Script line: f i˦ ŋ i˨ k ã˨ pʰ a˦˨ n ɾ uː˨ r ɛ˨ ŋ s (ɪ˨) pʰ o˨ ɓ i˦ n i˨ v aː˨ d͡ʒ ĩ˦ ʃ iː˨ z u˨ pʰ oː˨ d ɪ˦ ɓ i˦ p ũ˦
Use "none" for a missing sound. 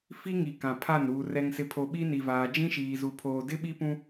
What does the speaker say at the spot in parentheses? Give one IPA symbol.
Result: ɪ˨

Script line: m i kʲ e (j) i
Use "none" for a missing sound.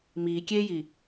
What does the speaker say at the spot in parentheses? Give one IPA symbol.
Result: j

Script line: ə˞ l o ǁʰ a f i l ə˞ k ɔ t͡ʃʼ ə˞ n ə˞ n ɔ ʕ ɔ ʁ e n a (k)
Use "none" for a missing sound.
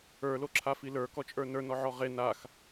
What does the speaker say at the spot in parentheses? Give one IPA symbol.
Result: x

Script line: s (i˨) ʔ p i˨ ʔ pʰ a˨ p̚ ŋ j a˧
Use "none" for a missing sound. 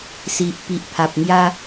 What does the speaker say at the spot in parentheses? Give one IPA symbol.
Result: i˨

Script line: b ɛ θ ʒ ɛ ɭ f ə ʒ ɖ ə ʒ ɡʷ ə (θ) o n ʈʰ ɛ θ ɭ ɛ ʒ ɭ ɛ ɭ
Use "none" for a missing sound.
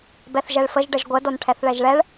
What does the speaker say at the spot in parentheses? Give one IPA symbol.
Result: d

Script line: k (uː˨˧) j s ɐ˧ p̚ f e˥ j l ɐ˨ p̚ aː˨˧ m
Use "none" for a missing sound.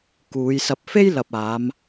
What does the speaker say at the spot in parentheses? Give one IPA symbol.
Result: uː˨˧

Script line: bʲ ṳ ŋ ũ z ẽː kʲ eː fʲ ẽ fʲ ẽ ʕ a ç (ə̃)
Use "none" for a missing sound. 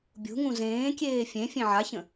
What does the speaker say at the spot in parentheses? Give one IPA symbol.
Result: ə̃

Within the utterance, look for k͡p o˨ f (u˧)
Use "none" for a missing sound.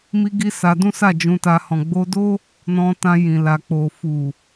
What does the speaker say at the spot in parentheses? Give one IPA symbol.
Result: u˨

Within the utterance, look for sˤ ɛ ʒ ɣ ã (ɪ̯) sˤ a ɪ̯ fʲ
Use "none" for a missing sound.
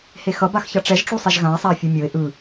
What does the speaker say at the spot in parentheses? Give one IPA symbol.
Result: ɪ̯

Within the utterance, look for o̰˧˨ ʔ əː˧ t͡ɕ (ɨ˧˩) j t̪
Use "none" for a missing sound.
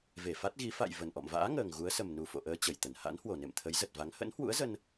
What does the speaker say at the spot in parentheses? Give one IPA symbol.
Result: ə˧˩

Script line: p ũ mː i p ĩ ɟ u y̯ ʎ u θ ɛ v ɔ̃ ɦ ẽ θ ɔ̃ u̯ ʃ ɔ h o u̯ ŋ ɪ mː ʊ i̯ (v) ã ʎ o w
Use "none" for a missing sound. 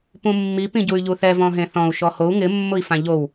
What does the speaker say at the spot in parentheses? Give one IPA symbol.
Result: f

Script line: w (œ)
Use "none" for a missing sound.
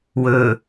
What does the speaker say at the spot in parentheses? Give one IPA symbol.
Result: ɵ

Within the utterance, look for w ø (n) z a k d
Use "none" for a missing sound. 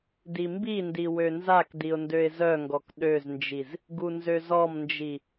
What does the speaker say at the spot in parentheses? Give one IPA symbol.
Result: n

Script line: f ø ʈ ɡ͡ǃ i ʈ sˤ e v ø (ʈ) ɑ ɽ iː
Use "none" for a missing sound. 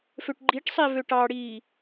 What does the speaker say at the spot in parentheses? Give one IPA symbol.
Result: ʈ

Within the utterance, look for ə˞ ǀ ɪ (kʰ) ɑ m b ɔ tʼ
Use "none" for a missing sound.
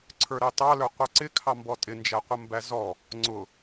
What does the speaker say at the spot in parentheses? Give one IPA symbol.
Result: kʰ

